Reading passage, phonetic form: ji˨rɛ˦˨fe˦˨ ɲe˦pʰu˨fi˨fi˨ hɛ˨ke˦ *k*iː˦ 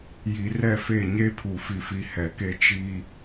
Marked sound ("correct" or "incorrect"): incorrect